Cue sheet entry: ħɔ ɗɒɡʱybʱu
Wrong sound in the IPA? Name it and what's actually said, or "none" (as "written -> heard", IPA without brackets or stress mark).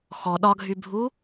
ħ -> x